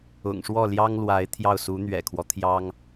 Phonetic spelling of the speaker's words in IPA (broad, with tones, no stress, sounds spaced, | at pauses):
ʊ̰˨˩ ŋ ʂ w ɔ˥˩ l j ɑ˥ ŋ l w a˧˥ ɪ̯ t̪ʰ j ɑ˥˩ ʊ̯ s u˧˥ n̪ ɥ ɛ̰˨˩ kʰ w ɔ˦ t̪ʰ j ɑ˥ ŋ